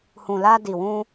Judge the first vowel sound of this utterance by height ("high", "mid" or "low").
high